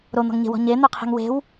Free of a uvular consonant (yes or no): no